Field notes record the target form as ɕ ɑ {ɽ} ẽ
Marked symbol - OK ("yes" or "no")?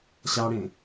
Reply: yes